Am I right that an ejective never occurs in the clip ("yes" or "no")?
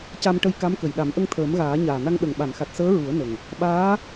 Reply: yes